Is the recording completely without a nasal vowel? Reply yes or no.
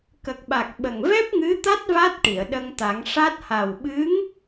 yes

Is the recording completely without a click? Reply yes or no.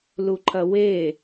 no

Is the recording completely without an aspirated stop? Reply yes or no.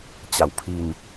no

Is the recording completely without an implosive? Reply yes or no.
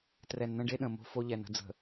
no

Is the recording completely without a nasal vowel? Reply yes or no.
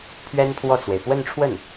yes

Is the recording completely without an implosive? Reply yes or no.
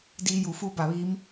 yes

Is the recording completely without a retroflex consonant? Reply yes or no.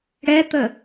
no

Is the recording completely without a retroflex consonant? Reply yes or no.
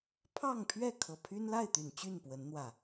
yes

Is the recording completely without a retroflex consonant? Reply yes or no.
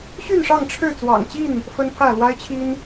no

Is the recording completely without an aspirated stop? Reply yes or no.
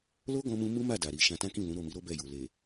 yes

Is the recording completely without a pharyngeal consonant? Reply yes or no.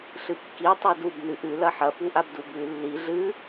no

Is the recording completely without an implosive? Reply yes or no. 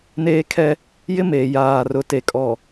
yes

